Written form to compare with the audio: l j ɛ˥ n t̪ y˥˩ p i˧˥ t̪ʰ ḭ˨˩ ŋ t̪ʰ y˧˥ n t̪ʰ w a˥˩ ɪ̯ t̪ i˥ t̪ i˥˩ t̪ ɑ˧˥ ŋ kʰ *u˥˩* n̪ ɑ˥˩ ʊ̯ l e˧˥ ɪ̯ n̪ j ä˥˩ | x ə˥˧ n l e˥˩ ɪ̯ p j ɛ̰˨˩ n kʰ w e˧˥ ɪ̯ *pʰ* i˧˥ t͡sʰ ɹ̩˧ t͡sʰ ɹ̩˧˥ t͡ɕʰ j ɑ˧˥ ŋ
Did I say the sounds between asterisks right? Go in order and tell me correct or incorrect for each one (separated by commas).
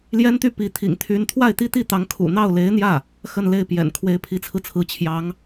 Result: incorrect, correct